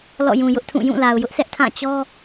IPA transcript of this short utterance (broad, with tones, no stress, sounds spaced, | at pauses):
l ɔ̰˦˨ j ũ˨ j ʊ˦ ʔ tʰ ũ˦˨ j ũ˦˨ l a˨ ʊ̯ j ʊ˦ ʔ s ɛ˦ ʔ tʰ ã˦˨ t͡ɕ ɔ˦